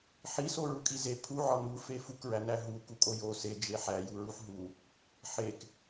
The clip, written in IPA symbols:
ħiso ɹukʼize pʰuʕɒ nufe fukɹænæ ɦu kukʼojo sed͡ʒe ħæjuɹuħ ɦu | ħek

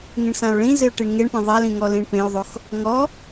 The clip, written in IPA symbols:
ŋĩɳsão̯ɭĩzɪo̯ ʈiɳŋeɳpẽ ðˤalĩ ŋɔlĩɳpẽo̯ðˤox | ŋɔ

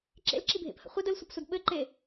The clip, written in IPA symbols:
ǁḛlǁibʱḛphə̰ χʷɘd əlsʷəpsʷəd ɓɘǃe

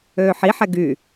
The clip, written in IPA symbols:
øːħiħɛ ɡyː

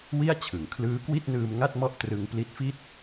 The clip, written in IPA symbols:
wi˥˩a̯ t͡ɕʰɯ˩˦ŋ kʰlɯː˦˥kwi˥˩t̚nɯː˧m ŋa˥˩t̚mɔ˥˩ʔ trɯ˧ŋ pli˦˥t̚fi˥˩t̚

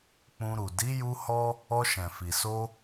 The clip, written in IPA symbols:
k͡pũ˧ɾu˨ di˨˦ju˧ hɔ˦ | ɔ˧ʃɛ̃˨fi˨so˧

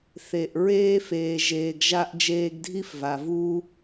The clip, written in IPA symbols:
θe˩ʔ ɹeː˧feː˩ ʒeː˩ɡʒa˧ʔ d͡ʒeː˧ɡdʱi˥fva˩ vu˧

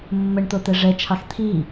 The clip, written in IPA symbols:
mːəɳt̪ot̪ɛ ʐɛt͡ʃʰɑx t̪ʰi

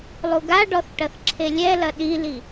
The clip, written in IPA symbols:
lˠuɡaɖɔθ ʈɐθǁʰelʲɛlɐ ɗili

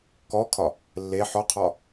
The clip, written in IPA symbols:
kɔkʰɒ | lːe ħɔqʰɒ

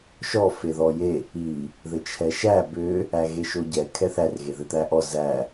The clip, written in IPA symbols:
ʃɔ feðɔje | i | ðɘt͡ʃʰɛʃæ bʏ | æɣeʃoɟɛ kʰɛθær ɣeðɘt̪æʔɔ zæ

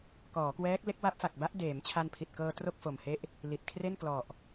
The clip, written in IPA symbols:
kɔː˩˦kwɛː˦˥k̚ le˦˥k̚wa˦˥p̚fa˨˩k̚ba˦˥ʔ deː˩˦mt͡ɕʰa˧npʰi˨˩t̚ kɤː˧tro˥˩k̚fo˨˩mhe˦˥ʔ | li˨˩t̚kʰre˥˩nklɔ˨˩ʔ

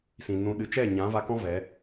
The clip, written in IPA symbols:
sĩ˨nũ˧ɗɨ˧ t͡ʃɛ˦˨ ɲã˨˦va˧kɔ̃˦ vɛ˨˦

